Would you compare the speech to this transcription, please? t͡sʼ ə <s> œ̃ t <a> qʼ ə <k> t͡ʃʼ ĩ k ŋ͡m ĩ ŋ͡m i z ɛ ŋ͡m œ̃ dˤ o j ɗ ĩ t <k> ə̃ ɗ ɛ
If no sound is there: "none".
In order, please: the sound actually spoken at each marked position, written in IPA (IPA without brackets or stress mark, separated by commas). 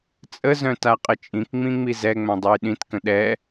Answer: z, a, none, k